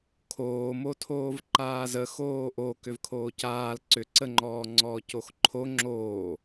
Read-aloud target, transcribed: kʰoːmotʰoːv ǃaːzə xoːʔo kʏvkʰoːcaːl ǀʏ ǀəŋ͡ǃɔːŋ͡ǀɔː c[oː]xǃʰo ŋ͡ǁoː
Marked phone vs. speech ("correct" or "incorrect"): incorrect